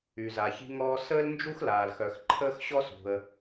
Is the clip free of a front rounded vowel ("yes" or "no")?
no